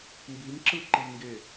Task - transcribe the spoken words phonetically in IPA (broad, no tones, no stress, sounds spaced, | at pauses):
m b i m ǁ ɯ ǃ i ŋ ɡ e